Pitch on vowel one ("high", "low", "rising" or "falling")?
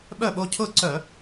falling